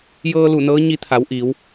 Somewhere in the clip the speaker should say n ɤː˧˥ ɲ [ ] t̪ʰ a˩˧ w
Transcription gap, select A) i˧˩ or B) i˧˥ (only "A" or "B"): B